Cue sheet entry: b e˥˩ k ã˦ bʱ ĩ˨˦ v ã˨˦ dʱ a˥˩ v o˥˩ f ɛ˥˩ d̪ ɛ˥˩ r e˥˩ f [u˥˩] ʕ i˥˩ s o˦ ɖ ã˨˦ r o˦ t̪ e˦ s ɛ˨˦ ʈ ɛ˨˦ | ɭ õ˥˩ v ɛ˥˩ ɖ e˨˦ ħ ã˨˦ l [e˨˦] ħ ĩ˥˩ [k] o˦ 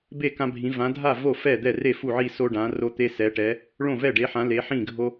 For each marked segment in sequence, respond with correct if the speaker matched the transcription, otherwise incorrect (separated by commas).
correct, correct, incorrect